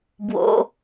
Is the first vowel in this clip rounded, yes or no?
yes